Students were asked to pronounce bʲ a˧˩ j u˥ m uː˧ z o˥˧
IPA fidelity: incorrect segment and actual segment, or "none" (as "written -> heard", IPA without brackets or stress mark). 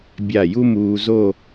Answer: none